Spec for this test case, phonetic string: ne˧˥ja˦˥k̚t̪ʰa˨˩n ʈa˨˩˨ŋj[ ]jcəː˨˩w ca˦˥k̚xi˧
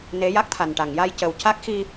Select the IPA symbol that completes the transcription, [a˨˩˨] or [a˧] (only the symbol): a˧